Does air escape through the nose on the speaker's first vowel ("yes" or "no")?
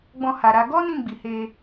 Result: yes